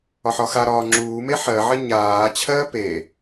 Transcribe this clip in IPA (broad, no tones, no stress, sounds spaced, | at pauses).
ɒ ħ ɒ x a ɾ ɒː ŋ͡ǁ uː m e ħ ɜ ʕ ɜ ɲ aː t͡ɕʰ ɜː p e